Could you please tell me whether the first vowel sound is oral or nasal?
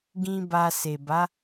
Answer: nasal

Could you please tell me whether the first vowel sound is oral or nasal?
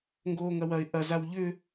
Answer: oral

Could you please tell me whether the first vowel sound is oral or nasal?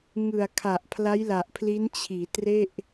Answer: oral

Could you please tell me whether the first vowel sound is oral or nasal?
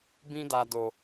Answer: nasal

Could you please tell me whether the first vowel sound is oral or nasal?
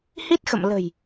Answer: oral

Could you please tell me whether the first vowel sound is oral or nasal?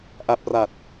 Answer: oral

